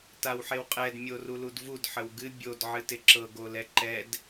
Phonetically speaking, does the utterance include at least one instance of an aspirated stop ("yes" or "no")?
no